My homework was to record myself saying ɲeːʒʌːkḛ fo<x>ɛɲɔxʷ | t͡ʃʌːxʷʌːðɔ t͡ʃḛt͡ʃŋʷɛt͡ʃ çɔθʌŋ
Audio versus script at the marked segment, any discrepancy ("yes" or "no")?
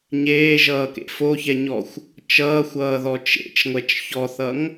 yes